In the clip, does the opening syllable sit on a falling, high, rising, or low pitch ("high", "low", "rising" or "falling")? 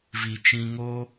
low